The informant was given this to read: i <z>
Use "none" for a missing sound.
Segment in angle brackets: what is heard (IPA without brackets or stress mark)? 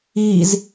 z